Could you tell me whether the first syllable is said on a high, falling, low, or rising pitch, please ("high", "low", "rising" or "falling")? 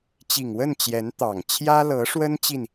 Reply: low